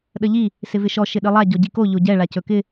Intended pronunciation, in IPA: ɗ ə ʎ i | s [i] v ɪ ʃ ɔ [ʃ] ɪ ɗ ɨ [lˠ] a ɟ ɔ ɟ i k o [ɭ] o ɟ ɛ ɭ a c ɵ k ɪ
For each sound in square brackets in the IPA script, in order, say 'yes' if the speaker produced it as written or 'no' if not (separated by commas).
no, yes, yes, no